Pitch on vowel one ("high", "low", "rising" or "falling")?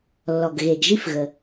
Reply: low